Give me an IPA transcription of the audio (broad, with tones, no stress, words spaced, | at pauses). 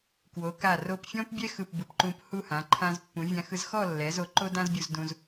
kwo˩˧ka˧˩ ro˧˩pfʲɔ̃˥pbʲɛ˥ xɯ˧˩pbɯ˩˧p ǃũ˧phu˥˧hã˩˧ ǃʰã˧zpːũ˩˧vʲã˧xɯ˧z xɔ˥˧lːɛ˩˧zo˩˧ ǃo˥dã˥zbʲu˧zdũ˧z